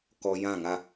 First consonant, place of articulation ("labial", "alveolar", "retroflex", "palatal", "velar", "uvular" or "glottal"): velar